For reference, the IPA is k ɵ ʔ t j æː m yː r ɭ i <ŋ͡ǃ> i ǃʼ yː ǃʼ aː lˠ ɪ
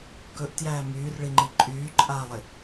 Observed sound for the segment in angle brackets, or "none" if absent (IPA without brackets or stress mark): ŋ͡ǃ